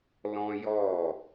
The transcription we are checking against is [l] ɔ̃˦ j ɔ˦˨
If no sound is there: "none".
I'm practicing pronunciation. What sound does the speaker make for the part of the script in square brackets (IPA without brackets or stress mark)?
l